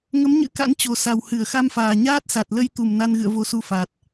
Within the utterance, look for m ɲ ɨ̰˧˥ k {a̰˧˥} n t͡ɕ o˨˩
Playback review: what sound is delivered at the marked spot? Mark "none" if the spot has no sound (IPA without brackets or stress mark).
a̰˧˥